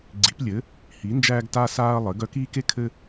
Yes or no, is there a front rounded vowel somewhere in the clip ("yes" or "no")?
yes